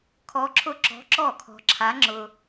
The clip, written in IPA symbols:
kʰɔ˧˥ǁʰʊ˥˩ǁɔ̤˧˥ ǁɔ˥˩kʰɔ̤˧ǁʰa˧˥ ŋ͡ǁʊ˧

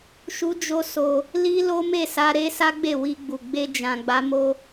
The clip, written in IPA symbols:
ʃu˦d͡ʒo˦so˧ | li˦ lo˦me˦˨sa˧ ɾe˦ sa˦ɡ͡be˦˨ wi˧ɡ͡bu˨ ɡ͡be˧d͡ʒã˨ ɡ͡ba˨˦mo˦

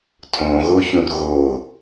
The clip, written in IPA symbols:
tʰõɣoçũr ɣo

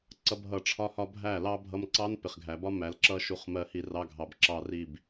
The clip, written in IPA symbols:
ǀʌ˦bɦʌ˧ʈ͡ʂʰɒ˦hɒ˦ bʱæ˦˨ lɑ˦bʱʌ˧mǀɑ˦n pɪ˨χɡʱæ˨bɒ˦ mæ˨lǁʌ˦ ʃu˧χmɜ˧hi˧ rɑ˧ɡʱɑ˨bǁɑ˧ri˦˨b

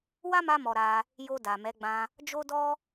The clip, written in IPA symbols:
wa˦ma˧mɔ˨ ɾa˧ | jo˧da˨mɛ˨˦ ɡ͡bã˧ | d͡ʒo˦dɔ˦

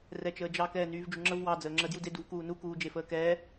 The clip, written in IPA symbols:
rɛt͡ʃəːd͡ʒɑ kɛːnyːvd͡ʒuŋ͡ǁəv wɑ d͡zəːŋ͡ǁə djude duvkuːnu kuːd͡ʒefəːkɛː

